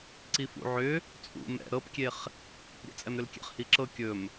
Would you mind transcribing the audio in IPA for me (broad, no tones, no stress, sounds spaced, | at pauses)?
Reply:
ǀ i f ṵ ʕ ʏ | t͡sʼ ṵ m ɛ̰ ɾ ɤ p kʲ e χ | ɾʲ ɛ̰ t͡sʼ ɛ m ɾ ʏ l kʲ ɛ̰ χ h i ǁ ɤ kʲ ɵ m